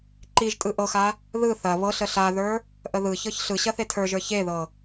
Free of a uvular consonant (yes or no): yes